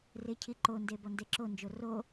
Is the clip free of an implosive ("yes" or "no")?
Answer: yes